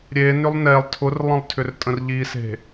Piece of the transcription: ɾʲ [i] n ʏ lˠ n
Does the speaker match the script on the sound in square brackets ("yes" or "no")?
no